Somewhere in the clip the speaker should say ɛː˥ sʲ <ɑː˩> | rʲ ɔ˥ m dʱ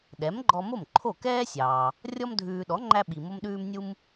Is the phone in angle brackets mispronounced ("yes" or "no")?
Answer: no